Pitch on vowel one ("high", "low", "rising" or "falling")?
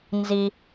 high